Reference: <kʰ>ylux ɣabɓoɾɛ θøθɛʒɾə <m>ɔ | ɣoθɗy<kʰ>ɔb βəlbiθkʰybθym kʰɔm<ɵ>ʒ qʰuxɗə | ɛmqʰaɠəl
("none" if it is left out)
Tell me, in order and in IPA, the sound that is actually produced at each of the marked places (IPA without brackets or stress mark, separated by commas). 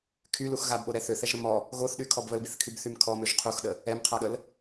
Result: kʰ, m, kʰ, ø